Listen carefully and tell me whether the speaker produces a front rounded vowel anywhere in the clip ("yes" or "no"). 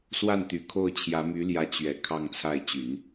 yes